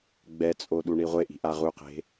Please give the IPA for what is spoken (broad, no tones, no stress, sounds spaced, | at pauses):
ɡ͡b ɛ t͡sʼ o ɗ u ɳ i ʁʷ e ʔ i̤ ʔ a ʁ u q e̤